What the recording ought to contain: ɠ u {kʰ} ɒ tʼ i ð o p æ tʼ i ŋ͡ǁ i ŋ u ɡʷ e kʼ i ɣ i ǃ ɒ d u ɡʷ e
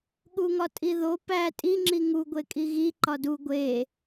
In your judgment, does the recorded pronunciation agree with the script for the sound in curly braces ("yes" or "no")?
no